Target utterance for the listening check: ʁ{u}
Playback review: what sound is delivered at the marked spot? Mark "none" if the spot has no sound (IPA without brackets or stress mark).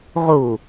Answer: u